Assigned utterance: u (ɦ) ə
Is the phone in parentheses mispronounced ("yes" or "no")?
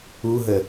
no